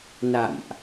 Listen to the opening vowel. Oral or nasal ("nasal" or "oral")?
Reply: oral